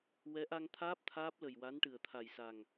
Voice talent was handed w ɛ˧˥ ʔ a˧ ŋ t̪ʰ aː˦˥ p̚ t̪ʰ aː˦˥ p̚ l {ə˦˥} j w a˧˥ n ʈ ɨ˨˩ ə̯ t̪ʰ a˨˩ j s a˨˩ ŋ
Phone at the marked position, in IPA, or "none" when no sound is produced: ə˨˩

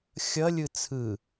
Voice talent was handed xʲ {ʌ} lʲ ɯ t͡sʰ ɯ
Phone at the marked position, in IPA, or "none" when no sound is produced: ʌ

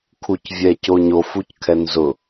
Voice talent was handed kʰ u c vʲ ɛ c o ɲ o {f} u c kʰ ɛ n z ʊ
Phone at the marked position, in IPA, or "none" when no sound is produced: f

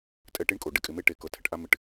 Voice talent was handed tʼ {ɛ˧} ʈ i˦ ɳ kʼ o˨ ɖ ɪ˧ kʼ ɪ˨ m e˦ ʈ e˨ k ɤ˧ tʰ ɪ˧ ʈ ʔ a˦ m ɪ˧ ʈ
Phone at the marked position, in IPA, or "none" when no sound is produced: ɛ˧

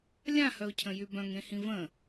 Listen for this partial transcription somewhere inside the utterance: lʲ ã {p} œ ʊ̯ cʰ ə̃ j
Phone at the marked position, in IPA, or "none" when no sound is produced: h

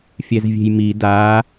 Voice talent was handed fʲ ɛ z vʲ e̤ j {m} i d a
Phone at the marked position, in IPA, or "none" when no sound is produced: m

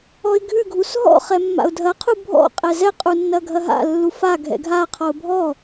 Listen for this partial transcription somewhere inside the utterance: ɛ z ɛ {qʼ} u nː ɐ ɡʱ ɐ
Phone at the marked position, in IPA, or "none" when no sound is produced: qʼ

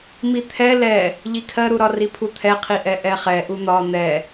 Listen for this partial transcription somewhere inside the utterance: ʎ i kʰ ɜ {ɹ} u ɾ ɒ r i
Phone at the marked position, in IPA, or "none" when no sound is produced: ɾ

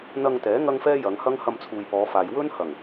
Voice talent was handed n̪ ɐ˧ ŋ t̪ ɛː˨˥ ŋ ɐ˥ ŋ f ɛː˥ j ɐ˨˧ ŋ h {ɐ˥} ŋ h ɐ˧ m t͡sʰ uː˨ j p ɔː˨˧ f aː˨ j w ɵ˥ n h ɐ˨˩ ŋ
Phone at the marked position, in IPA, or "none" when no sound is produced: ɐ˥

